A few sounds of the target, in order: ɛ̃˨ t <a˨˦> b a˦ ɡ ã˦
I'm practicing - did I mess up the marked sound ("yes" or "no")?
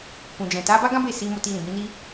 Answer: no